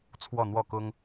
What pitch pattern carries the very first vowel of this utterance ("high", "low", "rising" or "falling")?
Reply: falling